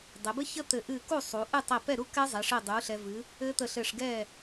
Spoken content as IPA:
dˤɛ˩˧bɘ˦˥çə˦˥ t̪ɘ˧˩ ʔɨ˧˩ku˥˩ sˤu˩˧ʔɨ˥˩tˤɛ˧˩ pɛ˥˩ɾu˦˥ kɛ˦˥zˤɛ˩˧ʂɘ˧˩dˤu˩˧ ɬɛ˩ vɨ˩˧ | ɘ˦˥t̪ə˧˩ɬɘ˧˩ʂ ɡɛ˧˩

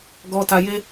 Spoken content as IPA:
ɡɔ˨ta˨je˧

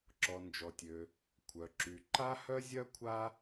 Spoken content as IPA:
ǁɔ˩ nd͡ʒɔ˩tʲø˩ | kʷʰœ˩ǁy˩ ǃa˥hœ˥zʲœ˥kʷʰa˥

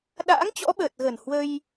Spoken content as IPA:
ɗa̰ː˧˥ŋt͡ɕɔ̰˧˥ ɓəː˨˩t̚ɣə˨˩n hwə˧j

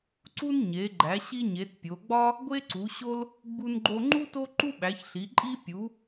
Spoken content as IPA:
ǀu˥nɲe˨˦ɡ͡ǃæ˨˦ ɕi˥ɲe˨˦tpʲo˨˦ ɡ͡bɒ˥ | ɡʷe˥ǀu˨˦ɕo˥l | ɡ͡bu˥nɡ͡ǃo˥ ŋ͡ǃu˥ to˥ǃu˥ ɓæ˨˦çɬi˨˦ǃʼi˥ pʲu˨˦

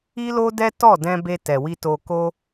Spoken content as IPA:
i˦lo˦dɛ˦ tɔ˦˨dɛ̃˧ be˧tɛ˨wi˧ to˧ko˦

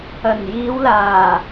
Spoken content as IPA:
ɐ˨˩njiː˨˧wlaː˨˩

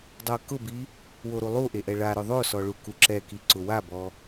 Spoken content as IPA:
dˤokʊbi | woɾulˠuʔe ʔɛɭaɾʊ ðˤosɔ ɭukuǁɛki ǀʊwabɔ

